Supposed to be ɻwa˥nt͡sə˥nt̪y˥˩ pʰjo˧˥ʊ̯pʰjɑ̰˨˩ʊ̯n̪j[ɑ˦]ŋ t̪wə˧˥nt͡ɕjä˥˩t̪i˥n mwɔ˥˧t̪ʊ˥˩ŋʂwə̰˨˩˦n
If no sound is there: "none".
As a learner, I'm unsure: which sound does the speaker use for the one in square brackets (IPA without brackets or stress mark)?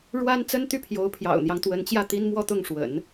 ɑ˦